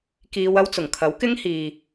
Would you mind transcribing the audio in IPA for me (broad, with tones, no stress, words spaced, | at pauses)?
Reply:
kiː˧w ɐ˥wt͡sʊ˨˩ŋ kʰɐ˨˥wkɪ˥ŋhiː˨